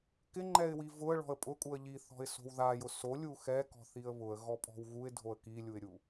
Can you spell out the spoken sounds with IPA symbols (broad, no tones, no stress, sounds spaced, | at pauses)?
k ɪ ŋ͡ǃ ɛ ɪ̯ w i v ʊ ə̯ ɭ ɔ̤ ə̯ pʼ ʊ kʼ u ə̯ ʎ i θ ɔ̤ ɪ̯ s o̤ w ð a j ʊ s o lʲ u x ɛ k ɔ̤ θ i ə̯ β ʊ ə̯ ɣ ɔ pʼ ɔ̤ w ɣ u ɪ̯ dʱ o ə̯ k i lʲ u ɪ̯ ɾʲ u